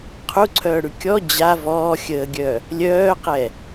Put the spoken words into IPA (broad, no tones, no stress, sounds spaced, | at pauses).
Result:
qʰ u ǀʰ œː ɽ ʉ kʲ ɔ d͡ʑ a v ɔː xʲ əː ɡʲ œ | lʲ œː q ɛ